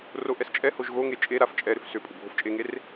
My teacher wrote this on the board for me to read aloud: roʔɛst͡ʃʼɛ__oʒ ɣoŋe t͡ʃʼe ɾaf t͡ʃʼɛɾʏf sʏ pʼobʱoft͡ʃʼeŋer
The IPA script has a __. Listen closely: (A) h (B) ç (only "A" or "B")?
A